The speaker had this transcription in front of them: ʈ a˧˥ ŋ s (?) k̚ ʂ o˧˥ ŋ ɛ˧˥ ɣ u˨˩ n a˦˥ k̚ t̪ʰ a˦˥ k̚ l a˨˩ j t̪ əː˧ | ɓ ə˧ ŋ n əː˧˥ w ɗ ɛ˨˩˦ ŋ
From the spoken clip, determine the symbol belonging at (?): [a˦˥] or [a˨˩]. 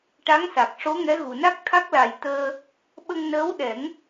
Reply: a˨˩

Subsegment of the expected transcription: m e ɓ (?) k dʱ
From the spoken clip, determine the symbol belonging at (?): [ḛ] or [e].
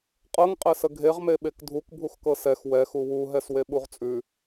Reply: e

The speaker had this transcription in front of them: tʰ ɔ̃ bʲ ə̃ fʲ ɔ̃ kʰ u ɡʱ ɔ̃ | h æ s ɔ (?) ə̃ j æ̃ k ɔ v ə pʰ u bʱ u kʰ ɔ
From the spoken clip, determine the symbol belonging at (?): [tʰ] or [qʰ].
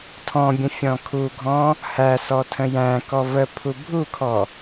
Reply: tʰ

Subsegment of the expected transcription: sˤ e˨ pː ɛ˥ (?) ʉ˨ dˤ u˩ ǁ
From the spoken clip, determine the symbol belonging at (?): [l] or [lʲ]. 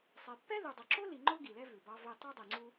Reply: l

